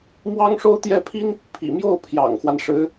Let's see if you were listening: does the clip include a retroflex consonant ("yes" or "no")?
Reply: yes